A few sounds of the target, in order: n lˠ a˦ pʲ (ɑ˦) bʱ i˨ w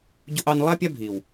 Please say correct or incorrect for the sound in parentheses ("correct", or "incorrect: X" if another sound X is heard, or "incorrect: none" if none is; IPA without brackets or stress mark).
incorrect: a˦